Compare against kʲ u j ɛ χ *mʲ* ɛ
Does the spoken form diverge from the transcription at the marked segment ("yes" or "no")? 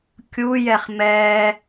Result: yes